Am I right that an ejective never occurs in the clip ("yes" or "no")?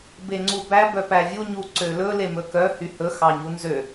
yes